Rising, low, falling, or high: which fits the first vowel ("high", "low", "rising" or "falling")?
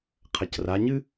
low